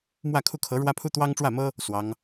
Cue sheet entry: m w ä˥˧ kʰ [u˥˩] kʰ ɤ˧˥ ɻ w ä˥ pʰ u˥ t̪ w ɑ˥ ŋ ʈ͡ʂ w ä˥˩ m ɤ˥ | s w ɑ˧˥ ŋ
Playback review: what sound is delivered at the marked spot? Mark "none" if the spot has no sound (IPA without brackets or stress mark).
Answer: u˥˩